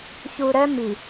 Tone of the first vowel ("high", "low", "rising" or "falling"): low